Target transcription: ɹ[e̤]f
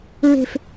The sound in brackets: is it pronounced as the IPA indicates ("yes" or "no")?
yes